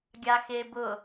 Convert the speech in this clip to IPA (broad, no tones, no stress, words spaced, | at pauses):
ɡʲaxebʊ